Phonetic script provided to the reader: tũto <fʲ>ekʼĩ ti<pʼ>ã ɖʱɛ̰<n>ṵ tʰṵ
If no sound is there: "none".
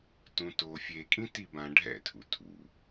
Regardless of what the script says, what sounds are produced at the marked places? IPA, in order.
fʲ, b, tʰ

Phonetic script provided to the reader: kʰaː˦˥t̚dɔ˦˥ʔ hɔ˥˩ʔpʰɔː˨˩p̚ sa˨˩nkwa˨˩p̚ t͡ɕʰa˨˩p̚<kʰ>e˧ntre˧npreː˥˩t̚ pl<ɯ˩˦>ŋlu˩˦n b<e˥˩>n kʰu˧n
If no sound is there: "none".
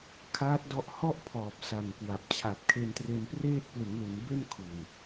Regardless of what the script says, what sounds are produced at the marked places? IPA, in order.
kʰ, ɯ˩˦, e˥˩

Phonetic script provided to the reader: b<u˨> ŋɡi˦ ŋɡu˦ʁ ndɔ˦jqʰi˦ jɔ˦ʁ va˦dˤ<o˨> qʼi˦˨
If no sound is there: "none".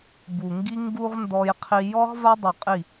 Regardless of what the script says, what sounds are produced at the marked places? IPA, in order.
u˨, u˨

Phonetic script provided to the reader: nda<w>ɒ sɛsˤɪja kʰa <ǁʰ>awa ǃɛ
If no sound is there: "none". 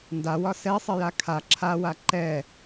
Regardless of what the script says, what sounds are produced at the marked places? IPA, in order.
w, ǁʰ

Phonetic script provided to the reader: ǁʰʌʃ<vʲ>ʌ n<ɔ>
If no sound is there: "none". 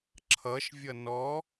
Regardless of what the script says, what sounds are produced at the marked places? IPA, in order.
vʲ, ɔ

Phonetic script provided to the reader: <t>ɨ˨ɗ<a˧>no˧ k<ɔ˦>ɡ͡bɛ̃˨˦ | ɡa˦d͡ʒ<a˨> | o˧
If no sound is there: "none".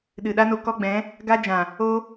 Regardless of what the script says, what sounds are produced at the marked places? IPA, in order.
ɗ, a˦, ɔ˦, ã˨

